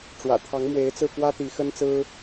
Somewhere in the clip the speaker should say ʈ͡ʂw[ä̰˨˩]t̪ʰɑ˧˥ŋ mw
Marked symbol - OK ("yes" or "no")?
yes